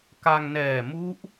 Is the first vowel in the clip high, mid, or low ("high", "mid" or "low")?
low